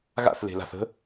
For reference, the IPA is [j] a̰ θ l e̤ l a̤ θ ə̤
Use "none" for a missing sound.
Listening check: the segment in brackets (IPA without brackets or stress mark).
ɣ